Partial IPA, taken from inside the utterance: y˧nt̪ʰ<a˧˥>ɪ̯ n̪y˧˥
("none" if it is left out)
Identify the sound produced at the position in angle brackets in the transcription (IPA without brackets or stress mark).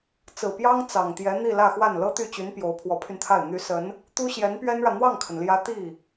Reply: a˥˩